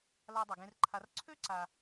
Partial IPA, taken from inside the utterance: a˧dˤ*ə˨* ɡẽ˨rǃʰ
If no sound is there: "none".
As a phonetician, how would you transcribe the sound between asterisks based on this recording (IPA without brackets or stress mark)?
ə˨